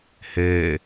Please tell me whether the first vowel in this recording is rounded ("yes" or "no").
no